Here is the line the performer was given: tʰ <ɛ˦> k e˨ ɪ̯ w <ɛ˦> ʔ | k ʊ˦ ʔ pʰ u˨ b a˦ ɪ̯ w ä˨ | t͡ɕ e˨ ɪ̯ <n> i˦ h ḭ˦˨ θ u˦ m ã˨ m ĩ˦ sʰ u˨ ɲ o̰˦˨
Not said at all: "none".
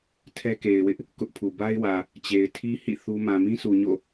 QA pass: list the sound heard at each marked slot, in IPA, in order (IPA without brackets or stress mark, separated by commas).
ɛ˦, ɪ˦, tʰ